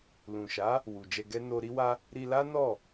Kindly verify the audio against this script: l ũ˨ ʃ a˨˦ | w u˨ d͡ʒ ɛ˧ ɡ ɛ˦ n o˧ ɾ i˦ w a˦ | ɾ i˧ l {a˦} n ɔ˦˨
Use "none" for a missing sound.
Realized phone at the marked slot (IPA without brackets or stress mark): a˦